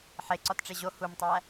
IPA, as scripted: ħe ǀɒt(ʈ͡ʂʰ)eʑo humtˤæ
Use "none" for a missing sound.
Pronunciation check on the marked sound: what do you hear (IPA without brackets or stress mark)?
ʈ͡ʂ